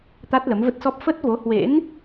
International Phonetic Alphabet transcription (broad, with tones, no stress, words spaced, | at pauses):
t̪a˦˥t̚lə˨˦mvə˦˥t̚sɔ˦˥p̚ fə˦˥t̚vo˨˦hwḛ˧˥n